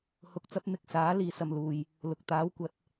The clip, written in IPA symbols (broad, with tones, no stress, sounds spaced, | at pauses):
h ʊ˧ k̚ t͡s ɐ˥ p̚ n̪ ɪ˧ k̚ s aː˨˥ l iː˨ s ɐ˨ m l uː˨ j | l ʊ˨ k̚ t̪ aː˨˥ w kʷ ɐ˨˥ t̚